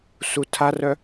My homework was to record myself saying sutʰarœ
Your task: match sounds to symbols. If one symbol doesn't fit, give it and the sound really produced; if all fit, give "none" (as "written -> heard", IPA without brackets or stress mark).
none